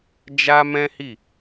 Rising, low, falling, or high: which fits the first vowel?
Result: high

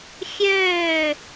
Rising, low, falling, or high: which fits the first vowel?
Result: falling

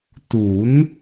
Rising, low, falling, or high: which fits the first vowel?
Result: rising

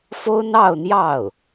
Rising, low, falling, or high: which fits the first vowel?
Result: high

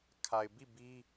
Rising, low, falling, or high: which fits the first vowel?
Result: low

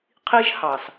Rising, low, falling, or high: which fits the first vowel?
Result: high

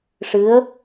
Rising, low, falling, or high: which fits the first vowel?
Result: rising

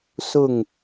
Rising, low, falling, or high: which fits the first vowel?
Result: falling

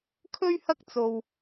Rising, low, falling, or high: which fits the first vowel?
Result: high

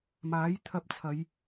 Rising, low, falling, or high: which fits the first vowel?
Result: rising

